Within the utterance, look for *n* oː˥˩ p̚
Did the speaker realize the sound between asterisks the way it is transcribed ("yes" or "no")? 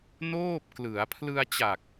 yes